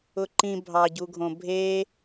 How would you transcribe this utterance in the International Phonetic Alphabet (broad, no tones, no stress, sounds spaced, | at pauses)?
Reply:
ʊ ǃ ĩ bʱ ɑ ɟ u ɡʱ õ bʱ e